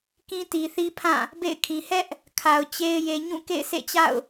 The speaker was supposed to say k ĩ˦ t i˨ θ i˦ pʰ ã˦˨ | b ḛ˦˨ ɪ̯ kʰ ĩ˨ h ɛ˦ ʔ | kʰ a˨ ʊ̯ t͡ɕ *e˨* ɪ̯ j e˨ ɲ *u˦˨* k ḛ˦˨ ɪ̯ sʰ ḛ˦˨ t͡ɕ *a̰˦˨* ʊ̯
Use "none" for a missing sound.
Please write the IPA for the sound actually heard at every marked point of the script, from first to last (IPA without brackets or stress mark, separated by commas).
e˦, ũ˦˨, a̰˦˨